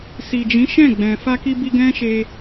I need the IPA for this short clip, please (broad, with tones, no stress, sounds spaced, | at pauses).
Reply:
s i˨ d͡ʒ ĩ˨˦ ʃ ɛ̃˦˨ ɡ͡b ɛ̃˨ f a˧ k i˧ b i˧ ɡ ɛ̃˦ ʃ e˧